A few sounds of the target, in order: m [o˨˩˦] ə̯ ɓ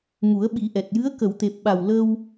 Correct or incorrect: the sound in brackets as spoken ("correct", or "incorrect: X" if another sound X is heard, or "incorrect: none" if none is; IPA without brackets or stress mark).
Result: incorrect: u˨˩˦